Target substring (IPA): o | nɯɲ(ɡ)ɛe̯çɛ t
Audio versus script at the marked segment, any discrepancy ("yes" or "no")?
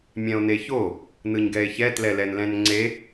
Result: no